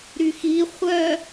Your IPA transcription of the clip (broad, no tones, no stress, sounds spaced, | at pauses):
ɾ y x i χʷ œ